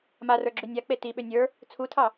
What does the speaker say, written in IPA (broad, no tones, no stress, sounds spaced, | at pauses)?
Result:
m a r ə˞ ɡ͡ǁ ʉ nʲ a k͡p e t i ɓ ʏ nʲ ə˞ | t͡sʰ u tʰ ɑ